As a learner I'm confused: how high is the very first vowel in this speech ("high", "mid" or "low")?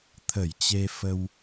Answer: mid